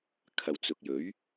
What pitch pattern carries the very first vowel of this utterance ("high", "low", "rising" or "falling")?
low